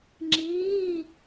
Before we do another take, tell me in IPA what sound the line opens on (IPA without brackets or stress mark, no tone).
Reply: ŋ͡ǁ